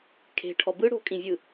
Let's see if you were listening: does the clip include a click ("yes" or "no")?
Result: no